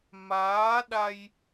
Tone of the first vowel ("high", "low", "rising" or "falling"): rising